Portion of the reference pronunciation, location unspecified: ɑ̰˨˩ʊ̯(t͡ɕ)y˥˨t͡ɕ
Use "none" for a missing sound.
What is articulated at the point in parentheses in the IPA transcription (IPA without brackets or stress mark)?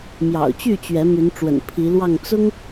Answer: t͡ɕ